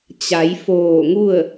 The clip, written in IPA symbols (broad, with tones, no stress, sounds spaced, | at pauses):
t͡ɕ a˩˧ j f oː˧˩ ŋ u˥˨ ə̯